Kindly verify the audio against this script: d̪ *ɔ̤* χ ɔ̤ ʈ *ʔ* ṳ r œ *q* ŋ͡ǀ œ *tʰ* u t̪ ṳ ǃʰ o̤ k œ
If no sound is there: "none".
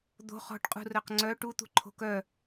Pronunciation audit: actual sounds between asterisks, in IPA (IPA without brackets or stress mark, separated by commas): o̤, qʼ, q, ʈ